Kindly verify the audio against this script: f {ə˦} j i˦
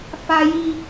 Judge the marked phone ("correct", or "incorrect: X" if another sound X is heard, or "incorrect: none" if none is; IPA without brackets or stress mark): incorrect: a˦